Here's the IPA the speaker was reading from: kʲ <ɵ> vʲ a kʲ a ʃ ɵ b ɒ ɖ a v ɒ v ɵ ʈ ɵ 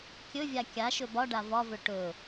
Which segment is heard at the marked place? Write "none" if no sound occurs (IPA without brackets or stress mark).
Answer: ɵ